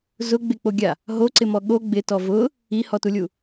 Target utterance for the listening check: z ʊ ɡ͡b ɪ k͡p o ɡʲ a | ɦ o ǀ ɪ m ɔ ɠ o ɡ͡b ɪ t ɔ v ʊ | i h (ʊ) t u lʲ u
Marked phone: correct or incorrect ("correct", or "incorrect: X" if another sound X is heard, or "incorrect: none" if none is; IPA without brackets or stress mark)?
incorrect: ɔ